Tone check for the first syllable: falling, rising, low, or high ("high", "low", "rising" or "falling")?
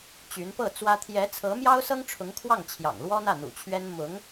rising